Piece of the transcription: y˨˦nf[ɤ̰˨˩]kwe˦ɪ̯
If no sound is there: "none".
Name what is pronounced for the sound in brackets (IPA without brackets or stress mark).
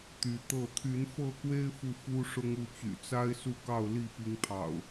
ɤ˥˨